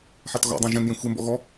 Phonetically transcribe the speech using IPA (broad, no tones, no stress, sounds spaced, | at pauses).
ħ a t ɣ ɔ̰ dˤ ã ʒ ɛ̃ n j ẽ xʷ e m b ɔ̰ ɣ ɔ